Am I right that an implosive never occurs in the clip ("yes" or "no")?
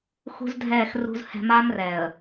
yes